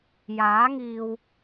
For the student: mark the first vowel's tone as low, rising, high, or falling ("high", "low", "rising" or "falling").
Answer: rising